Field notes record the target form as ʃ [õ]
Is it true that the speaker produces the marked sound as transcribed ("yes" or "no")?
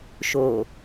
no